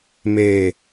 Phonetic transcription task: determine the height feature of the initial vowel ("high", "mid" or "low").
mid